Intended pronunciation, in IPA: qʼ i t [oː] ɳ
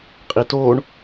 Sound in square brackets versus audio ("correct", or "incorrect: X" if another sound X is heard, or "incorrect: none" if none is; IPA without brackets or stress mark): correct